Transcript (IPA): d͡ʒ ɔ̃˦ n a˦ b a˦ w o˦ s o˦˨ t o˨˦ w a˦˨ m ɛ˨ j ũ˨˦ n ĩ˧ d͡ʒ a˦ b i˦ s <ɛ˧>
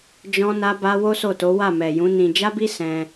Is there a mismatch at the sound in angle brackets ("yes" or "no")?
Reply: yes